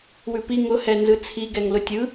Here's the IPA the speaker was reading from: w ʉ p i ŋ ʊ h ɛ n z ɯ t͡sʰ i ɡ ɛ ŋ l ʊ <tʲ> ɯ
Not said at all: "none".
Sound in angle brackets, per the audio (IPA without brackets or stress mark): tʲ